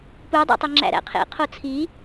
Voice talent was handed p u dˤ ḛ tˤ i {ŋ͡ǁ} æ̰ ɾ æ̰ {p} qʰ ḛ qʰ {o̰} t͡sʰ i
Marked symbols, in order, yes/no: yes, no, no

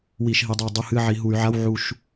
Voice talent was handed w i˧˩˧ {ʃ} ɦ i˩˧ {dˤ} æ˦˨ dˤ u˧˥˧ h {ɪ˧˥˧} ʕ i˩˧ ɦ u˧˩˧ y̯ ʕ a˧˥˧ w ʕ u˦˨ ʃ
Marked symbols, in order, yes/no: yes, yes, no

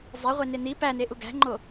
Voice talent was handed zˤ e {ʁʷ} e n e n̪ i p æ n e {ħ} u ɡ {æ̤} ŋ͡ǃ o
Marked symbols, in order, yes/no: yes, no, yes

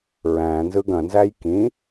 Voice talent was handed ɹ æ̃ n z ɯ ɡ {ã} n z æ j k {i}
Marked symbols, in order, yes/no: no, no

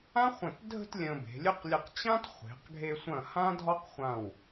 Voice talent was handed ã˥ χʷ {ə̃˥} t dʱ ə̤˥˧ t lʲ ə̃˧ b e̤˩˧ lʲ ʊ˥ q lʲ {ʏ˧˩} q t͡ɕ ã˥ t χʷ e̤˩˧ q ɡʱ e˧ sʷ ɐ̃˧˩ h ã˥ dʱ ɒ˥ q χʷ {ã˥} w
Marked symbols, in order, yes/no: no, no, no

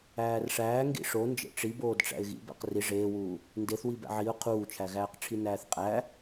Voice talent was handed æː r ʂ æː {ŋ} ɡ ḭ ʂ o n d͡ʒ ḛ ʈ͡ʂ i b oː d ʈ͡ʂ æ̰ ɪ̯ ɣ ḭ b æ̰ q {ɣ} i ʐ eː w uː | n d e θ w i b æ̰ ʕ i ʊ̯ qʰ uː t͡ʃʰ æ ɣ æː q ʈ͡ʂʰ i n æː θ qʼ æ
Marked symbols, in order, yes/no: yes, no

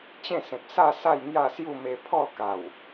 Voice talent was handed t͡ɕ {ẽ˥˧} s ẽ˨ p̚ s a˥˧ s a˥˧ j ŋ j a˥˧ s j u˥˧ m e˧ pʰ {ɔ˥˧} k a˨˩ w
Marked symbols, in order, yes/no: yes, yes

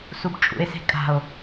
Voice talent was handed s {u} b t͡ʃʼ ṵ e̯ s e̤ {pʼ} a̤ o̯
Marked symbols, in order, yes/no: yes, no

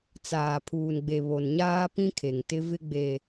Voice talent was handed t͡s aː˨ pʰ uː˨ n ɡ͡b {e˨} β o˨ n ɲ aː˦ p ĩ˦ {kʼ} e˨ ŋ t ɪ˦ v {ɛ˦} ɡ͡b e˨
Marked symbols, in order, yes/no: yes, no, no

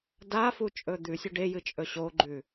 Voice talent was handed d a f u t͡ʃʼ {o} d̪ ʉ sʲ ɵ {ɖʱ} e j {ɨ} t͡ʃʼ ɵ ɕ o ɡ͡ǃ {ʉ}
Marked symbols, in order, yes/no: no, no, yes, yes

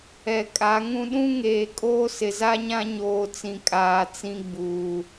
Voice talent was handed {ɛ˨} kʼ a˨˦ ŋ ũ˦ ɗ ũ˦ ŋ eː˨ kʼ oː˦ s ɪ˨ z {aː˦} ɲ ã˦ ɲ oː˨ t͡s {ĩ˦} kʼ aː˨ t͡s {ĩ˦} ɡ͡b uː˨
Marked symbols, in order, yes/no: yes, no, no, yes

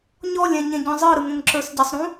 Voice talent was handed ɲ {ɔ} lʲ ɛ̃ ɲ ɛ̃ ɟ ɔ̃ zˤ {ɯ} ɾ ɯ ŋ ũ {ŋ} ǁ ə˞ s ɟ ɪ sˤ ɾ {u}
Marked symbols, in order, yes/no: yes, yes, yes, no

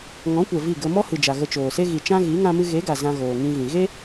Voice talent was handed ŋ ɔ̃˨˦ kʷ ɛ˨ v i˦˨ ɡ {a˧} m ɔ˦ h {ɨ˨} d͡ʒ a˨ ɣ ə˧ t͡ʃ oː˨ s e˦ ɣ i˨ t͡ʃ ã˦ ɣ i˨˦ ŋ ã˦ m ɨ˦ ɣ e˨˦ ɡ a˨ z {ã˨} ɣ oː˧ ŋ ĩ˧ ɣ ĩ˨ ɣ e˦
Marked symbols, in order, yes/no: no, yes, no

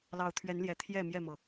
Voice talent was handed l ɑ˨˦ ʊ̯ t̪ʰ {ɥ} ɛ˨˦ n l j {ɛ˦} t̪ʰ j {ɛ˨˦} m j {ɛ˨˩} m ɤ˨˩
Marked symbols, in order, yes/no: yes, no, no, no

